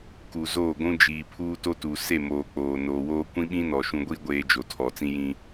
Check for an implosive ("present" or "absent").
present